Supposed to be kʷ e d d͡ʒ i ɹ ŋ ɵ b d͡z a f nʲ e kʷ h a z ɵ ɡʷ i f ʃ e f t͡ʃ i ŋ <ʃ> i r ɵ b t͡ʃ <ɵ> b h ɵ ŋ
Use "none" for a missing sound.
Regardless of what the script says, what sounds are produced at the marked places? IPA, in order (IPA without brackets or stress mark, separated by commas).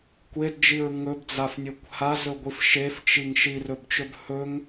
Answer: ʃ, ɵ